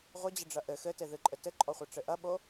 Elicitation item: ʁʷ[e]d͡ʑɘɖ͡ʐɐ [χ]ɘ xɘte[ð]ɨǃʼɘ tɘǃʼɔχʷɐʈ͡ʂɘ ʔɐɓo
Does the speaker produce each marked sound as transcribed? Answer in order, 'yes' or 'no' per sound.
no, no, yes

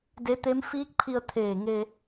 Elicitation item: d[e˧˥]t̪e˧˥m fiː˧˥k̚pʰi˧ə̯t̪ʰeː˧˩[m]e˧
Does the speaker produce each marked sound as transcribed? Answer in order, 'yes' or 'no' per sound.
yes, no

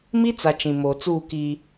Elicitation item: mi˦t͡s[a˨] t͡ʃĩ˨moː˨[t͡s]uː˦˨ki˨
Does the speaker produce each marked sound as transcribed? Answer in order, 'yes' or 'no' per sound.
yes, yes

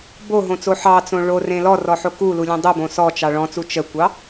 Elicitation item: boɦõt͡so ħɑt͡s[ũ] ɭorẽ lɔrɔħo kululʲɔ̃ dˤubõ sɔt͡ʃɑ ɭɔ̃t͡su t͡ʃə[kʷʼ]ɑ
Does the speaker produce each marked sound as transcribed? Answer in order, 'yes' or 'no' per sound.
no, no

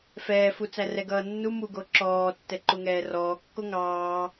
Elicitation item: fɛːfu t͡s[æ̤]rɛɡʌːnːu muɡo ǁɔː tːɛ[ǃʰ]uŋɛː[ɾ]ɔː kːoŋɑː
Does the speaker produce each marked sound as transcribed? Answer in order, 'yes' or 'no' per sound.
no, no, no

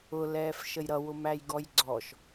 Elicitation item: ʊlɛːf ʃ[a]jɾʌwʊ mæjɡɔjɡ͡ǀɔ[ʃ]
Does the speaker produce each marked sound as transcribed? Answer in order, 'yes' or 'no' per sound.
no, yes

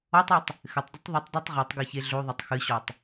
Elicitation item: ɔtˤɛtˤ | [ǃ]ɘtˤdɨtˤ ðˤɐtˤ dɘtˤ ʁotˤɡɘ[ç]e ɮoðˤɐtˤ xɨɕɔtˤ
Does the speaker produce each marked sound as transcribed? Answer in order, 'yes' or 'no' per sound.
no, yes

